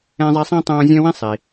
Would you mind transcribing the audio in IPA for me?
ɛ̃˦ zˤ ɛ˦ sˤ ĩ˥ tˤ õː˦ zʲ œ̃˥ w ĩ˥ sˤ i˩

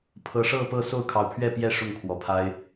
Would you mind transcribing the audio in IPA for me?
pʰ ɤ˨˦ ʂ ɤ˥˨ p ɤ˥˨ s o˥˨ ʊ̯ kʰ ɑ˨˦ ʊ̯ pʰ ɥ ɛ˥˨ p j ɛ˥˨ ʂ ʊ˥˨ ŋ kʰ w ɔ˨˩ pʰ a˦ ɪ̯

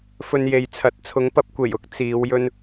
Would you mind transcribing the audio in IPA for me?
f ɵ˧ n j e˨ j t͡sʰ ɐ˨˥ t̚ t͡sʰ ʊ˨˧ ŋ p ɐ˧ p̚ kʷ e˨˩ j ʊ˨˥ k̚ t͡s iː˨˧ w j ɵ˥ n

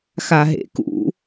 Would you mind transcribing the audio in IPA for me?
x a ɦ ḛ k ṵ

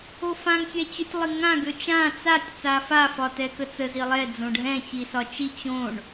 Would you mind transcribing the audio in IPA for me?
o f ã ŋ sʲ ɛ t͡ɕ ø tʲ lˠ ɪ ŋ ã ɡ ø t͡ʃ ã t͡s a tʲ t͡s a f a f ɒ t ɛ k ə t͡s ə z i lˠ ɛ d͡z õ ɖʱ ɛ̃ t͡ɕ i s ɒ t͡ʃ i t͡ɕ õ ɳ

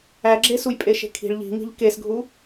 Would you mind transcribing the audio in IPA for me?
æ ɡ͡ǁ e s u j pʼ e ʃ e̤ kʰ i̤ ɭ ʎ i̤ ŋ i̤ ʎ k e s ɡʱ u

